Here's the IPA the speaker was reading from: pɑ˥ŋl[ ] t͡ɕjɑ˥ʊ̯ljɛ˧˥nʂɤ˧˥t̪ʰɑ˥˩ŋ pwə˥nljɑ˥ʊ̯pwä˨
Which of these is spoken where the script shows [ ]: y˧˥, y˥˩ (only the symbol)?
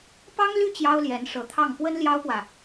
y˥˩